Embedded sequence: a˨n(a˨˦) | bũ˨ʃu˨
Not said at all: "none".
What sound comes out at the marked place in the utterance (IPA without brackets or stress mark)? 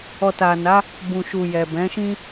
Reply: a˨˦